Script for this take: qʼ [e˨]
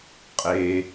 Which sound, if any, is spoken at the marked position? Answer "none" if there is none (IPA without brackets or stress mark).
e˨